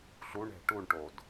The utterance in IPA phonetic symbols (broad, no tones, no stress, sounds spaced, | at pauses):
ɬ u ɳ ɛ̤ ʈ u ɳ ʈ o d